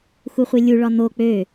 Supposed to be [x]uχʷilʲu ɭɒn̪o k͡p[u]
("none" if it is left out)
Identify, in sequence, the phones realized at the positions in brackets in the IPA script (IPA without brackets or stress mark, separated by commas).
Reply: x, ø